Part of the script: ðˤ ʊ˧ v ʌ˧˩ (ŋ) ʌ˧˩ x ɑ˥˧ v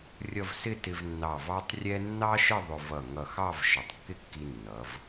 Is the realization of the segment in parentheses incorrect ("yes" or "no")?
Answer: no